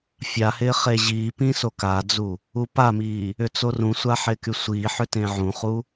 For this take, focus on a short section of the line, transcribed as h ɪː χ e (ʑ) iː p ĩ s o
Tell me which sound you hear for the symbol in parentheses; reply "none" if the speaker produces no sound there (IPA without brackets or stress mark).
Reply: ʑ